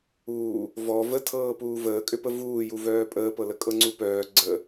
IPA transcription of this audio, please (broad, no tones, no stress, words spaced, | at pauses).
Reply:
uː | vɔ vətʰɤː puːvəːkʼʏpə vuːjuvœː pʼəːpɤlə kʼɤŋ͡ǀupœː ɡ͡ǀə